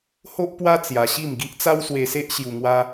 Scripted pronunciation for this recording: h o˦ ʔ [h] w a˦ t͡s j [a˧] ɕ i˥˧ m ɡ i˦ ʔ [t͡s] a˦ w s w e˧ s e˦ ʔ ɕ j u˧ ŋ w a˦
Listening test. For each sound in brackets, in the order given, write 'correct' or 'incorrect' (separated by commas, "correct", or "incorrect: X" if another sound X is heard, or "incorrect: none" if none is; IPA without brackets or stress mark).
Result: incorrect: p, correct, correct